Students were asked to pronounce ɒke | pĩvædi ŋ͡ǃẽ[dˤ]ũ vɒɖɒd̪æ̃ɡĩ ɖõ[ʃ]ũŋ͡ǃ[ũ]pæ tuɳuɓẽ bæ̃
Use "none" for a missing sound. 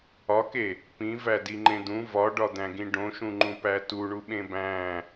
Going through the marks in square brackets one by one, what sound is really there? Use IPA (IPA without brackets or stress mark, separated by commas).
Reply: d̪, ʃ, ũ